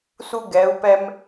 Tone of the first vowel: high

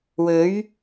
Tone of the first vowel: rising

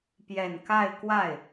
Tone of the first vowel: low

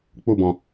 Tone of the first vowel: falling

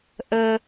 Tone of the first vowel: high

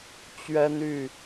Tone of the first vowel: high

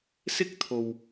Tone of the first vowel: high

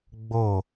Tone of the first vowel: falling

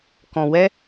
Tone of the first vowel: low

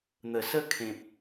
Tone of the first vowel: low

